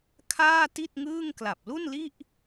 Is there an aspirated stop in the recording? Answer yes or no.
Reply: yes